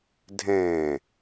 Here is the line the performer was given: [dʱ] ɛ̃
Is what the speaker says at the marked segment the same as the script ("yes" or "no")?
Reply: yes